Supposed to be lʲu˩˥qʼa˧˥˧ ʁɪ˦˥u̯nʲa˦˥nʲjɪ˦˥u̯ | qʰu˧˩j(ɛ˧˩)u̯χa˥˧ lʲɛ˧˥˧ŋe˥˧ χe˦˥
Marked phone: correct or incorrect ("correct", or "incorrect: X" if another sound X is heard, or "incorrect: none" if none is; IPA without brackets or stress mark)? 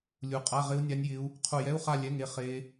incorrect: ɛ˧˥˧